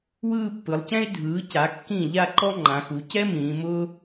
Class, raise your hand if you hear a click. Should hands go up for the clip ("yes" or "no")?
yes